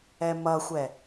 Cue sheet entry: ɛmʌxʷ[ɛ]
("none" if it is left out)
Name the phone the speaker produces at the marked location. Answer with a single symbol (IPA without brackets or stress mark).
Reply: ɛ